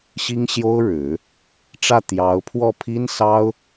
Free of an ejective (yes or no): yes